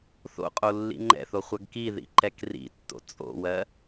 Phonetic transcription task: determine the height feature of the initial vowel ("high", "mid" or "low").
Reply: mid